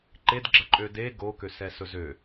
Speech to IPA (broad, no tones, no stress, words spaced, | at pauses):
ǃedɡ͡ǁəǃʼø de ɡokøsɛsɵ zø